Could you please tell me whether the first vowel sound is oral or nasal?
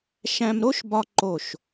nasal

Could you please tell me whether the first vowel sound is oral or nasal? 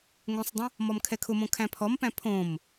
nasal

